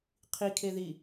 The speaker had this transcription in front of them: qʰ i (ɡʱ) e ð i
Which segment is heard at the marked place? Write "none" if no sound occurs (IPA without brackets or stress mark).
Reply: kʰ